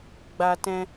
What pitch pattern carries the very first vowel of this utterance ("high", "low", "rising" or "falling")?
high